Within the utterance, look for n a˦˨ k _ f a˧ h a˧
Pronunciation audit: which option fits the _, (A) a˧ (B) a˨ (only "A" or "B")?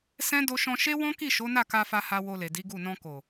A